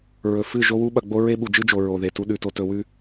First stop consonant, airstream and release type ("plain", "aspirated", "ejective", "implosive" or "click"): implosive